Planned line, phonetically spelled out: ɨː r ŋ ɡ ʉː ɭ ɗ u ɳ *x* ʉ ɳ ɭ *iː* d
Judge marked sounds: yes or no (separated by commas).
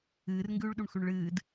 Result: yes, no